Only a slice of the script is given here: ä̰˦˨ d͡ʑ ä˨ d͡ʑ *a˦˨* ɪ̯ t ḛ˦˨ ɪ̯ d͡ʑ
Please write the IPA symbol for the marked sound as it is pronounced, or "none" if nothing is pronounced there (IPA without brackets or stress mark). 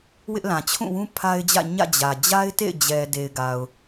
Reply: a˦